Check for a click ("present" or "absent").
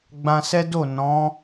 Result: absent